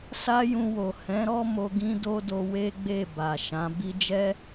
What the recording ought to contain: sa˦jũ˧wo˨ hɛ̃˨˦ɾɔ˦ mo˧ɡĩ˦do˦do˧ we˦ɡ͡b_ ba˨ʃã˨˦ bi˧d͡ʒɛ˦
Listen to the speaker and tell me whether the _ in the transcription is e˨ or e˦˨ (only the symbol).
e˦˨